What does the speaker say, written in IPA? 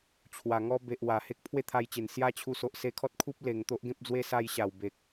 t͡ɕʰwa˨˩ŋɔ˦ be˨ʔwa˨˩ he˦k̚pʰwe˥˧t̪ʰa˧jt͡ɕe˨˩n sja˦t͡ɕʰu˧ so˨ʔse˧kʰɔ˦t̚kʰu˦p̚ le˨˩ŋt̪o˦ʔɡẽ˦p̚d͡zwe˦ sa˧j ɕa˨˩wbe˨k̚

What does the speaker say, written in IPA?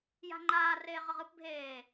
ja̤ŋ͡ǃaːreː ʁɤʁɯp bʱeː

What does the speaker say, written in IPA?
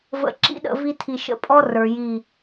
və̰˨ ǁḭ˦ɗə̰˨ vi˦tʰi˨ ʃə̰˦˨pʼɔ˦ rə˞˨ji˦˨

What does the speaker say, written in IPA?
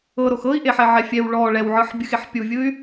ɤɾox ɤi̯ʔeħɛʕɛ fʲɛw ɭɔ ɭɛwʕɯħbʲɯxeħ pʲuvʲɯy̯

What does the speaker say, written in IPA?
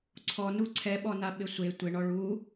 ǀʰɔnu ǀʰɛɓɔna ɓɪsʷe tʷɪɳɔ ɭu

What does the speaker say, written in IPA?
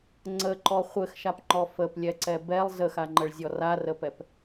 ŋ͡ǀəǃɔ χʷɘxʃapŋ͡ǃɔ fəplʲɛǀɛ bɛlˠ zəxaŋ͡ǃəɭzʲɔ rarəpɛp

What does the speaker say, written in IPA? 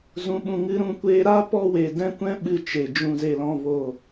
zũ˧ɓũ˧ ŋɨ˧ɾũ˧kʷeː˧ ɾa˦ pɔ˦we˧ dɛ̃˧kʷɛ̃˧ ɓɨ˧t͡ʃe˨ d͡ʒũ˨ze˨lɔ̃˨ vo˨

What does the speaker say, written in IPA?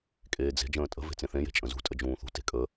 kʼeːd͡ze̤ d͡ʒə̃ːtʼə̤ ve̤t͡sẽθẽje̤ t͡ʃʼə̃zṳtʼə d͡ʒũːθṳ te̤kʼə

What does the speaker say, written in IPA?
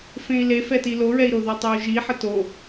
fẽi̯le fɛtiloɹɛi̯ ɾoðɜtˤeu̯ʒi ħəto

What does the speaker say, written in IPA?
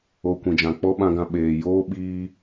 o˧kʷĩ˨d͡ʒã˨ k͡pɔ˦ɓã˧ɡã˧ɓeː˨ joː˦ɓiː˧

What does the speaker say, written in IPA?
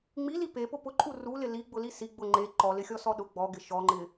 ŋ͡mili pepʊ pʊǃʼu rulɪ liɡ͡bʊli si ɡ͡bʊ ŋ͡ǃe ǃɔlɪxʲɔsɔ ɗʊ ɡ͡bɔɡɪ ʃɔŋ͡ǃɪ

